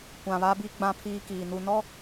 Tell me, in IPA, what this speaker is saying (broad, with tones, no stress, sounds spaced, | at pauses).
kʷ ã˨ β a˦ b i˦ ɡ͡b ã˦ pʰ iː˦ k iː˨ n u˨ n ɔ˦